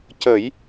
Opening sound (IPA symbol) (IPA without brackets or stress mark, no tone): c